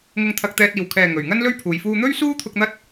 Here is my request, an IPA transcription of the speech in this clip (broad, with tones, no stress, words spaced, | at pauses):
ŋʊ˧ŋt̪ʰɐ˧k̚t̪ɛː˧t̚ iː˨˩wkʰɛː˨˩ ŋɵ˨˩ɥŋɐ˥nlɵ˥ɥpʰuː˨j fuː˧n̪ɵ˥ɥsuː˥t̪ʰʊ˧k̚ n̪ɐ˥t̚